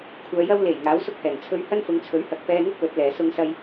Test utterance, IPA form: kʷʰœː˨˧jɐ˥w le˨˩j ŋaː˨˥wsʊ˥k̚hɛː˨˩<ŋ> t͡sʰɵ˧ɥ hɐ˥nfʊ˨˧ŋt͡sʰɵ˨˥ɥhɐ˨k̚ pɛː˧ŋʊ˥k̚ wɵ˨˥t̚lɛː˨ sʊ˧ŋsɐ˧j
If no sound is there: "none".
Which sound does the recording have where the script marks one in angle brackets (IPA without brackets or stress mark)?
ŋ